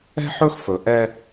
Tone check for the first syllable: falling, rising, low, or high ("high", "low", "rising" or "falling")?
high